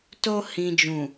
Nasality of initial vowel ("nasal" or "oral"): oral